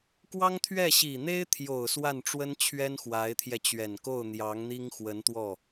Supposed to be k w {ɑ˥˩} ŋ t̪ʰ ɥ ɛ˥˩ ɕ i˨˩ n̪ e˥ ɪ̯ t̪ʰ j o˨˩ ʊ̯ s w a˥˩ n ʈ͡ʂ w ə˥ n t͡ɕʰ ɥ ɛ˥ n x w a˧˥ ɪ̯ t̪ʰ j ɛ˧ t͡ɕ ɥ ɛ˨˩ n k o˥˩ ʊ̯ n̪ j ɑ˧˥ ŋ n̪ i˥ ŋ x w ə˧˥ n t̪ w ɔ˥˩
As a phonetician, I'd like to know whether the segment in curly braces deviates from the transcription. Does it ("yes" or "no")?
yes